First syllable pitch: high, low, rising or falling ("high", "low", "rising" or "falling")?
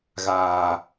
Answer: low